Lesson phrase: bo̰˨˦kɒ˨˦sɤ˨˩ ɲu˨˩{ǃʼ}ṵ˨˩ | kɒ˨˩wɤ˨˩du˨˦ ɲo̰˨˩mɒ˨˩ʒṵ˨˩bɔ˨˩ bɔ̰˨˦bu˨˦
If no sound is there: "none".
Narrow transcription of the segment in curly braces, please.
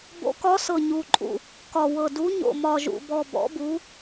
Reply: ǃʼ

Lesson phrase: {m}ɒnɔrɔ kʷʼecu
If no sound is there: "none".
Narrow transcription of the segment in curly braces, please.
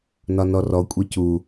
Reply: n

